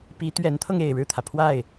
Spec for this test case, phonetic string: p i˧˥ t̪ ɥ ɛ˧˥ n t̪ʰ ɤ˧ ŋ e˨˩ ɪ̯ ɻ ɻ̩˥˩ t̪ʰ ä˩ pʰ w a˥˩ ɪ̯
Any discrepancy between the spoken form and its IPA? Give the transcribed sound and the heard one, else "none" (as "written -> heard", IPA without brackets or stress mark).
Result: none